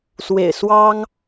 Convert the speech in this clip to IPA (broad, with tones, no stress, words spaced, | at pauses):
swḛ˨˩ɪ̯ swɑ˦ŋ